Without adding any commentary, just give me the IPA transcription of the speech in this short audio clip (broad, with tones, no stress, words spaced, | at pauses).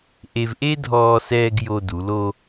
ʔe˧vʔe˥dʱɔː˧ sɛː˧ɡ jo˧du˩˧lo˧